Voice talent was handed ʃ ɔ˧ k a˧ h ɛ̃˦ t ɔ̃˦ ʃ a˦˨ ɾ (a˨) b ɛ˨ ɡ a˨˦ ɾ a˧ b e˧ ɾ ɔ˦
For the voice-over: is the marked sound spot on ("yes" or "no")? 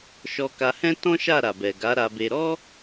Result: yes